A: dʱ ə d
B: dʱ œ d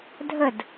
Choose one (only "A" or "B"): A